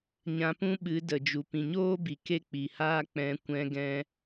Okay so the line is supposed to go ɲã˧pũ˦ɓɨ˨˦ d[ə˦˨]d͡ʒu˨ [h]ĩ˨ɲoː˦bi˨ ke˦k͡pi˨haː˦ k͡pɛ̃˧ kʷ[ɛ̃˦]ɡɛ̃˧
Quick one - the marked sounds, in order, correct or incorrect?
incorrect, incorrect, incorrect

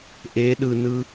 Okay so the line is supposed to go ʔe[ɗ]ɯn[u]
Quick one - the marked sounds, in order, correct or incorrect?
correct, incorrect

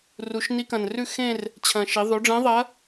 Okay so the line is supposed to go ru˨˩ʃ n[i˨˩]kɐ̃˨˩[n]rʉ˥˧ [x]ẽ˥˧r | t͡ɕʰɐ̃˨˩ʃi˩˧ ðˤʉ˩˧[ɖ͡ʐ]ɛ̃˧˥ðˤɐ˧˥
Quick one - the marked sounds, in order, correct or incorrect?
incorrect, correct, correct, correct

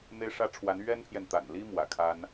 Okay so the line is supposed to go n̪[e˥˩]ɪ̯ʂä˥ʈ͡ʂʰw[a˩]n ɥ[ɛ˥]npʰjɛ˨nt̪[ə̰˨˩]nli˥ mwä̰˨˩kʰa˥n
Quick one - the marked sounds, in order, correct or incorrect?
incorrect, incorrect, correct, incorrect

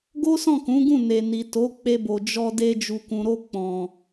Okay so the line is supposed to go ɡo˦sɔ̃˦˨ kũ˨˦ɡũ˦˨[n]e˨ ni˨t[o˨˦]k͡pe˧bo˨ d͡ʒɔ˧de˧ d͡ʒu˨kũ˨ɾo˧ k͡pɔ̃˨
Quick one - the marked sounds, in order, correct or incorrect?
correct, correct

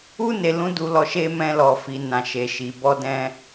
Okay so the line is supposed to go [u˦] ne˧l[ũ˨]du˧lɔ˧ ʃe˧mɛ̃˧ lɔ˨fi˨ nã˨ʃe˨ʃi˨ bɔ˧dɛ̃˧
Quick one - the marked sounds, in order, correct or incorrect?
correct, incorrect

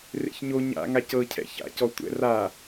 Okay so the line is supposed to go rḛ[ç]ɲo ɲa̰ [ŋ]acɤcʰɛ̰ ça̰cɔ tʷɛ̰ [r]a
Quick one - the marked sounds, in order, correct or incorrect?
correct, correct, correct

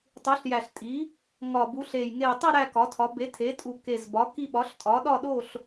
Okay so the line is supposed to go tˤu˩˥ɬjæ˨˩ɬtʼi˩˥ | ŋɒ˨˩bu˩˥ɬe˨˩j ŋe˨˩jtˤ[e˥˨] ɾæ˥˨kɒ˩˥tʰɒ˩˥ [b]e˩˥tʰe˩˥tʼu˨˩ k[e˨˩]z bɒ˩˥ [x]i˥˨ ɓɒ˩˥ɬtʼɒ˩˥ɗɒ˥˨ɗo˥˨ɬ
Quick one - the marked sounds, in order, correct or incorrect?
correct, correct, correct, incorrect

